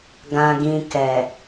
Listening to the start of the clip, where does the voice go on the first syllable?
low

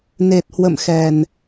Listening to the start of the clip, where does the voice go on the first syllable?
low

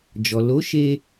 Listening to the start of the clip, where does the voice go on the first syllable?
low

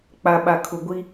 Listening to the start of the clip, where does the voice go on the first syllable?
low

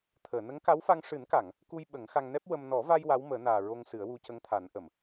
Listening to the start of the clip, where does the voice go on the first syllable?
low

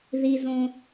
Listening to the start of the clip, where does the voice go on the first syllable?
low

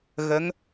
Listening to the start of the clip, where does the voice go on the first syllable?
rising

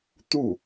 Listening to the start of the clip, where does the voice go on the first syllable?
falling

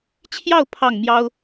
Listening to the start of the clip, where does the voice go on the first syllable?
falling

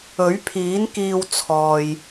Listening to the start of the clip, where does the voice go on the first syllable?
rising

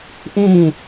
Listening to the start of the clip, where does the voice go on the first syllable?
falling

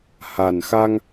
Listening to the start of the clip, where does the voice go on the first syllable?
low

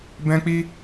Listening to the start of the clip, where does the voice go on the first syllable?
high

